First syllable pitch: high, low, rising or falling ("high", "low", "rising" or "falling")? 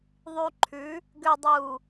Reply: low